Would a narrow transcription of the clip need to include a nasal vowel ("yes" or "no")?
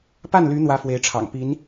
no